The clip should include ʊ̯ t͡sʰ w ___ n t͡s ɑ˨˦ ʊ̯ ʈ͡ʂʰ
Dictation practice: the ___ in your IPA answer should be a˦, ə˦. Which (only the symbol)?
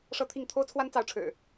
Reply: a˦